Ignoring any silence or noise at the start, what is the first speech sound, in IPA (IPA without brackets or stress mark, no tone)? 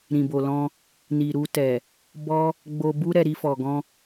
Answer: ɾ